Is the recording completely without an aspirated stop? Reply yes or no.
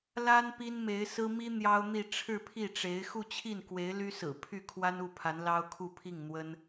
no